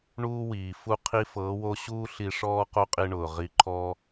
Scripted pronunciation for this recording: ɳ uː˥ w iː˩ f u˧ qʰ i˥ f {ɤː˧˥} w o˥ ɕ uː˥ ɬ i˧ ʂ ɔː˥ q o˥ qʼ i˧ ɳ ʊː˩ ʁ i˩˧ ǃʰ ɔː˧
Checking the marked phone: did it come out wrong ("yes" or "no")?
no